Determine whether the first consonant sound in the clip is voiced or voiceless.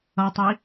voiceless